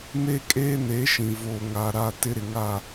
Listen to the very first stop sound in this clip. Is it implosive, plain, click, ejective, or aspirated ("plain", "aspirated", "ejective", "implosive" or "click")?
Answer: ejective